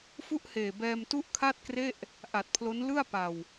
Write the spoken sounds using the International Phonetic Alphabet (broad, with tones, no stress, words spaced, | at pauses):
fu˥˩ʔheː˨˩bɛː˧m tu˥˩ʔkʰa˥˩t̚kre˥˩ʔ | ʔa˨˩t̚pʰlo˦˥n lɯ˥˩a̯ pa˨˩w